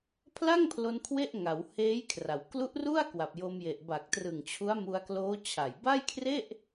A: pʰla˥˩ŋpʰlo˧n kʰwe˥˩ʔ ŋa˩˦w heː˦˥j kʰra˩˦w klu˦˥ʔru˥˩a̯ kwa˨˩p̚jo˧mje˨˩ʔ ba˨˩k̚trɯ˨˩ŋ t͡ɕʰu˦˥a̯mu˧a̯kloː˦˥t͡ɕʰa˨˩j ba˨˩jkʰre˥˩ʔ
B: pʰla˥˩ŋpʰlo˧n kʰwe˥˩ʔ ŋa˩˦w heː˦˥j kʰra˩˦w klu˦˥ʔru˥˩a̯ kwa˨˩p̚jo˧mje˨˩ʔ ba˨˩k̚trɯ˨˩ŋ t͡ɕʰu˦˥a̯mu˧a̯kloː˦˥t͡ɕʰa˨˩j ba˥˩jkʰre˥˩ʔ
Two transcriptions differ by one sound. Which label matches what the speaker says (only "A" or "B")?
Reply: B